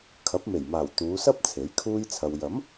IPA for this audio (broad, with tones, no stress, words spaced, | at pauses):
kʰɐ˨˥p̚me˨˩jmaː˨˩w t̪uː˨˧sɐ˥p̚ t͡sʰe˨˥jkʰuː˥jt͡sʰɐ˧w jɐ˨˥m